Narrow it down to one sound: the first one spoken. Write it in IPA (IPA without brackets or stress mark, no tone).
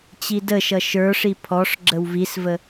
t͡ɕ